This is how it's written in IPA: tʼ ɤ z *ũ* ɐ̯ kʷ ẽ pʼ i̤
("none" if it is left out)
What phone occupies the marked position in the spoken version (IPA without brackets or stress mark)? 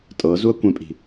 u